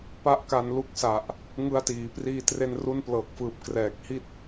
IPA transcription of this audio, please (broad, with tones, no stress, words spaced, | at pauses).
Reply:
pa˥˩ʔka˧n lu˦˥k̚sa˨˩ʔ | ŋɯ˧a̯tiː˩˦priː˧tre˧n ru˧nplɤː˨˩k̚fɯː˨˩p̚ krɛː˨˩k̚hi˥˩t̚